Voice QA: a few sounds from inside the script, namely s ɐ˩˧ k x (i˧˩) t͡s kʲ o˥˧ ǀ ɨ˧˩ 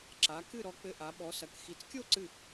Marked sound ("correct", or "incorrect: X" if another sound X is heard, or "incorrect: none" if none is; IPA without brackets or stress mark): incorrect: i˩˧